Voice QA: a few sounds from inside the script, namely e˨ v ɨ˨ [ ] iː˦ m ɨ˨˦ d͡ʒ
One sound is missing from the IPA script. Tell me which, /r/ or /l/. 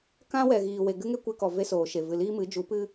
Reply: l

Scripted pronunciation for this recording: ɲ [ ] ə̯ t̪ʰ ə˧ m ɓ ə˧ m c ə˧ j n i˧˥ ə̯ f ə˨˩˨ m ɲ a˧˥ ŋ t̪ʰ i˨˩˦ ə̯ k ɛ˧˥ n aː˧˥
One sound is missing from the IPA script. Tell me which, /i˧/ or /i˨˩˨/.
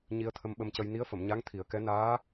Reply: i˧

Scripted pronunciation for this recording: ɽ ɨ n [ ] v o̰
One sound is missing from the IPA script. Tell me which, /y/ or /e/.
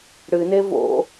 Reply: e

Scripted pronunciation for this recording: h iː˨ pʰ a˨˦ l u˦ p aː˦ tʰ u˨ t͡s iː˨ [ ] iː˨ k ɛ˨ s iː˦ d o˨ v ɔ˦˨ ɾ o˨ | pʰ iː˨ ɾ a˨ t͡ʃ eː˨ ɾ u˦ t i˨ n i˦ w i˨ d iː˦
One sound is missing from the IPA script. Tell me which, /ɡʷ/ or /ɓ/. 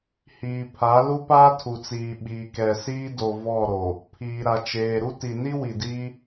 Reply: ɓ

